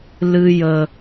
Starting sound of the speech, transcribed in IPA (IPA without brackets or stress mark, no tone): l